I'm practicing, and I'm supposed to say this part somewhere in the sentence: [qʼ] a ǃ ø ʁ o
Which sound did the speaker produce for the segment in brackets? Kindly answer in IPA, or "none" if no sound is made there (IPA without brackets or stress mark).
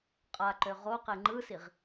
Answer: qʼ